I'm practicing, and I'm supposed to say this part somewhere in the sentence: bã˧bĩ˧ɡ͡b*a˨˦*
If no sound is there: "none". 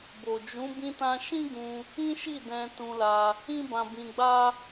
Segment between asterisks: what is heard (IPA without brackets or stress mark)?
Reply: a˦